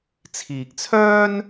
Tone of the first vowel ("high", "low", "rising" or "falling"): low